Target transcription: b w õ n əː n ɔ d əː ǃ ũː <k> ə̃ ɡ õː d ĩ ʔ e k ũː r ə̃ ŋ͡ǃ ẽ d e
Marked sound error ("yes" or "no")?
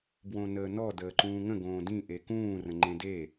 yes